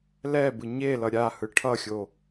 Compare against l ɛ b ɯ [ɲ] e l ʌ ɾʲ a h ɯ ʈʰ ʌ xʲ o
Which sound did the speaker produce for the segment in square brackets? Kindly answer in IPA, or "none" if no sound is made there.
ɲ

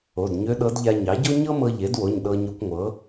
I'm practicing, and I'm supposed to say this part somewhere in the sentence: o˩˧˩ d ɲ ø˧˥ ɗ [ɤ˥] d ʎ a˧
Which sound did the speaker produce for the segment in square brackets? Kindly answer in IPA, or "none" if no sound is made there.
ɤ˧˥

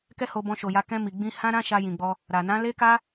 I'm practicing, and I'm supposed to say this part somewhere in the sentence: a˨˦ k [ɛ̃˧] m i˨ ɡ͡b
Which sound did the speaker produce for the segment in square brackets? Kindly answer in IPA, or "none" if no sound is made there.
ɛ̃˧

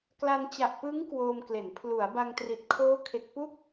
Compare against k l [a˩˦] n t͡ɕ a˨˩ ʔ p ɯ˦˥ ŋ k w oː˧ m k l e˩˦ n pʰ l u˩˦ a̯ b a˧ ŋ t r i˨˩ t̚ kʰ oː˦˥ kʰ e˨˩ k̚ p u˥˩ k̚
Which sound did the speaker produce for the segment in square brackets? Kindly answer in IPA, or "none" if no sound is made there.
a˧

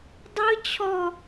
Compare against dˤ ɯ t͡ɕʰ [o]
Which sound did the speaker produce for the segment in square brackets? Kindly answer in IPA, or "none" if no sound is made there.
ɔ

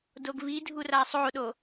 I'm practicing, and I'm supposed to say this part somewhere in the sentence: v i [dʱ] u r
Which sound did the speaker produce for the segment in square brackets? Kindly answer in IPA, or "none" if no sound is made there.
dʱ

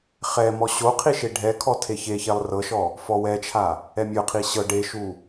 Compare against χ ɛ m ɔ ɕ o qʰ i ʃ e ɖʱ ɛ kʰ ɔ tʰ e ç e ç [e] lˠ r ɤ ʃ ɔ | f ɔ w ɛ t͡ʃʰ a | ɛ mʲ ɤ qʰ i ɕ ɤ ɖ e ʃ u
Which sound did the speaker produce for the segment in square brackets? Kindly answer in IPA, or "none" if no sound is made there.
ɛ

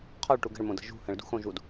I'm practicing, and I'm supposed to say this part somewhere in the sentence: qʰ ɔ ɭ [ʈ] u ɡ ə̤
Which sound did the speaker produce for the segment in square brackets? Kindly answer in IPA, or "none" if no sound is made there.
ʈ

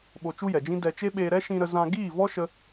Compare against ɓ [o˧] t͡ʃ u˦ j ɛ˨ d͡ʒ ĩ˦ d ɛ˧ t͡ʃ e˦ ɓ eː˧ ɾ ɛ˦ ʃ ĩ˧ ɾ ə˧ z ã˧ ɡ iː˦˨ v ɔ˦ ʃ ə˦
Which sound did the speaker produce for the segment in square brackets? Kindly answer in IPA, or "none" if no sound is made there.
o˧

